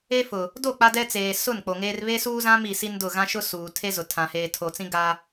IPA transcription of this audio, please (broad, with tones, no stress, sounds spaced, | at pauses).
e˦ f ʊ˨ | d o˦˨ k͡p a˦ d ɛ˦ t͡s eː˨ s ʊ˦˨ n k͡p o˨ ŋ eː˦ r β e˦ s uː˦ z ã˦ m i˨ s i˦ n d ʊ˦˨ ɣ ã˦ ʃ ʊ˦ s uː˨ tʰ e˦ z ʊ˨ tʰ ã˨ h eː˨ tʰ o˨ t͡s ĩ˦ ɡ a˦